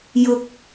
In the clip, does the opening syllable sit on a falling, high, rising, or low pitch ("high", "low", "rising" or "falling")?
low